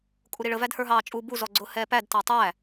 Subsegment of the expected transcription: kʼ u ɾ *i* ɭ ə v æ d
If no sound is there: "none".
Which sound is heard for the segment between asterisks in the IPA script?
i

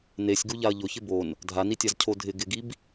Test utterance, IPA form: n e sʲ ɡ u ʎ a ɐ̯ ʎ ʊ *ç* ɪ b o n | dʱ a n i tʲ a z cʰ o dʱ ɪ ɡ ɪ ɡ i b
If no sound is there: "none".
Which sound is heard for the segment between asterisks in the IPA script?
ç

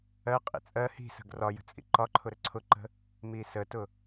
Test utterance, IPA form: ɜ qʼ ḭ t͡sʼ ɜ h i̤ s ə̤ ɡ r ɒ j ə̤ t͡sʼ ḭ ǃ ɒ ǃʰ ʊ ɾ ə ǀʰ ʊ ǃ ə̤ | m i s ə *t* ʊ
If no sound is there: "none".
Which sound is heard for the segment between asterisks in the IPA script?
t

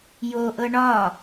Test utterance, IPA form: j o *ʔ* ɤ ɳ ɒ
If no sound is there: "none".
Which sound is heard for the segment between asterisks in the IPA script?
ʔ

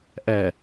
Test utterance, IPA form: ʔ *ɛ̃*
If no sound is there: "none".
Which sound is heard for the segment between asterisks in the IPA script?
ɛ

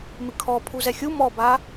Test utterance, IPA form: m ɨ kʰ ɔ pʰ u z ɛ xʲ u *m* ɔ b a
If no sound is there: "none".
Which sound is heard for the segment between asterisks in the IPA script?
m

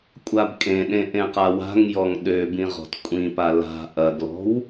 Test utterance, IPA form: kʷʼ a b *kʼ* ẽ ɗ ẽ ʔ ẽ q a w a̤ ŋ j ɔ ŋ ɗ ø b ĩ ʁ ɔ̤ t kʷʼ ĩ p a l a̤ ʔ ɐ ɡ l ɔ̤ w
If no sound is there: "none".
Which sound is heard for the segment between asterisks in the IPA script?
kʼ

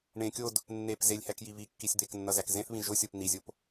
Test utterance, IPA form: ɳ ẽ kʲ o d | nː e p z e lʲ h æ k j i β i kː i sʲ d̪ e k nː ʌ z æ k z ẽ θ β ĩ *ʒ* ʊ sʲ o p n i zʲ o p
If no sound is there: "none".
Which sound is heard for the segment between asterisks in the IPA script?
ʒ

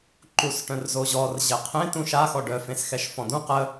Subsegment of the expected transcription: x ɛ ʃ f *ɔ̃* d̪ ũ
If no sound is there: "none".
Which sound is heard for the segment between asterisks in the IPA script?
ɔ̃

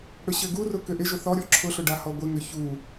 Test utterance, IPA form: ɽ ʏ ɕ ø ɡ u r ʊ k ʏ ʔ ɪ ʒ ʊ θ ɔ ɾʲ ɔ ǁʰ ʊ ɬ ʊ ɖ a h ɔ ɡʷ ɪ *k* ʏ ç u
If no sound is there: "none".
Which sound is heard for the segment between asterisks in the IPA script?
ŋ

